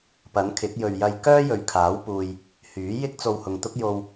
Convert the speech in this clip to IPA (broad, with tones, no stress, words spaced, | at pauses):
pɐ˨˥nkʰɪ˨˥k̚ jɵ˨ɥjɐ˧jkœː˥ jɵ˨ɥkʰaː˨˥w puː˨j | hyː˨˥jɪ˥k̚ t͡so˧whʊ˨ŋt̪ʊ˥k̚jo˧w